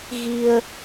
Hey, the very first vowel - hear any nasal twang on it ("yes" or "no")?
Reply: no